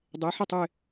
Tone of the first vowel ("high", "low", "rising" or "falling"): rising